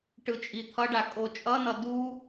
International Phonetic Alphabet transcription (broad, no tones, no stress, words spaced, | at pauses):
ʈɯt͡ʃʼit̪ʰʌɖa kʼot͡ʃʼʌnʌ du